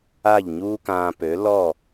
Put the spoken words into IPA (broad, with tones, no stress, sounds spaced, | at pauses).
a˥˩ ʎ ɲ uː˥ k ãː˧ p ø˩˥ l ɔ˥˩